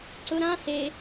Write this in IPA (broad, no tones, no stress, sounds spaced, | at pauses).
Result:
ǀ ʊ ɾ ã s e